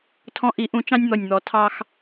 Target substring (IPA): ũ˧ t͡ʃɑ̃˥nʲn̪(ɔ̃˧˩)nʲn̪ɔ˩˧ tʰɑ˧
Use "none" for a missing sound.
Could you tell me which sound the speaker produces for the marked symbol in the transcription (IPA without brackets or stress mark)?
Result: ɔ˧˩